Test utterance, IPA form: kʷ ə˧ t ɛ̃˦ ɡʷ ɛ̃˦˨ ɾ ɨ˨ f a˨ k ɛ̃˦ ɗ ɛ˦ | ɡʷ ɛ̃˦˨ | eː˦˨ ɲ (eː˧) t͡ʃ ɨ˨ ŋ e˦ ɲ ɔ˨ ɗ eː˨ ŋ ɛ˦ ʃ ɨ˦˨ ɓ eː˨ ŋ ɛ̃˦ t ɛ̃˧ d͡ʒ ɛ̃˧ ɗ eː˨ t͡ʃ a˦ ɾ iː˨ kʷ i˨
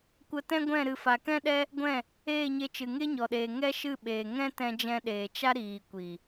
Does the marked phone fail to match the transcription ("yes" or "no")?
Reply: yes